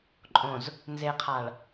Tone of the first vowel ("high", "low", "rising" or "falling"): low